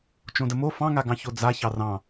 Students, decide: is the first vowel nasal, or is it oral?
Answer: nasal